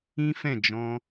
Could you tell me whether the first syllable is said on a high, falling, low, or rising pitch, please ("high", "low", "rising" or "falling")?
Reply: high